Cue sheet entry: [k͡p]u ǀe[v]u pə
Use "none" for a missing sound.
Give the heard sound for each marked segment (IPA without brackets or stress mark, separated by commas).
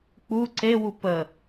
k͡p, w